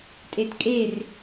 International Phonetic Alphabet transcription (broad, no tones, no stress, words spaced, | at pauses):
tʼetkʼer